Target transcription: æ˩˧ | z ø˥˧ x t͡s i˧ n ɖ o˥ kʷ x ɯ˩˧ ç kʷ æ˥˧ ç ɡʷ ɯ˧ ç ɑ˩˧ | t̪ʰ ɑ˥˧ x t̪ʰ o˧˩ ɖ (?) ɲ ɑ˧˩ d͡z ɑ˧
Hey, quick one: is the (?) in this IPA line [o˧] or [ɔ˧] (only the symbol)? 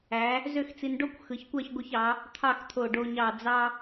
o˧